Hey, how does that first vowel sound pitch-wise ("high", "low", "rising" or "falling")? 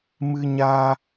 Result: high